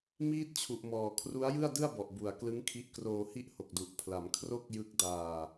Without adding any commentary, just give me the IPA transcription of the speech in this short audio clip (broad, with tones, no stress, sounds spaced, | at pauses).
m iː˥˩ t̚ t͡ɕʰ u˨˩ ʔ m ɔː˨˩ kʰ r u˦˥ a̯ j ɯ˥˩ a̯ d ɯ˥˩ a̯ b ɔ˨˩ ʔ b u˨˩ a̯ k l ɯ˦˥ ŋ kʰ i˦˥ ʔ k r oː˧ h i˥˩ ʔ h o˨˩ k̚ d u˨˩ ʔ pʰ l a˩˦ m kʰ r o˥˩ k̚ j ɯ˦˥ k̚ d aː˧